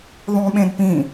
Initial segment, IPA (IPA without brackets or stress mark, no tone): ðˤ